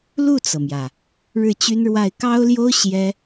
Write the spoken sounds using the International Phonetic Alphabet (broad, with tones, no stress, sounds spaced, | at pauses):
l u˥˩ t͡s ɤ˩ m j ä˩ | ɻ ɻ̩˥˩ t͡ɕ y˥ n ɻ w a˥˩ ɪ̯ k ɑ˥ ʊ̯ l j o˥ ʊ̯ ɕ j ɛ˥